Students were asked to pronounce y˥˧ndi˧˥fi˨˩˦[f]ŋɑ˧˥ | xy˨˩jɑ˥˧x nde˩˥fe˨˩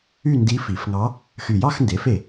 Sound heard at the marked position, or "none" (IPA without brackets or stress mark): f